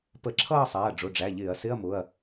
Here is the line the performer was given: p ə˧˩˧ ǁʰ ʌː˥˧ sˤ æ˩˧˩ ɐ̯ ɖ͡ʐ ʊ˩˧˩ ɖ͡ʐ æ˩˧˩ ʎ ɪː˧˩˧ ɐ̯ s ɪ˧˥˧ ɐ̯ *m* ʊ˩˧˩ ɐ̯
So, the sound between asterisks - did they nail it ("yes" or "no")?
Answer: yes